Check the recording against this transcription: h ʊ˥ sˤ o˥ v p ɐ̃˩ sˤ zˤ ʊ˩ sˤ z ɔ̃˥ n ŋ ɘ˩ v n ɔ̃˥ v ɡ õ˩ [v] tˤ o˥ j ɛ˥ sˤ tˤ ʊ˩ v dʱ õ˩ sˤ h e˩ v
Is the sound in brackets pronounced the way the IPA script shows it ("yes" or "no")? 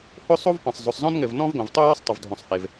yes